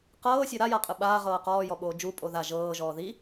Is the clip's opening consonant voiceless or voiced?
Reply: voiceless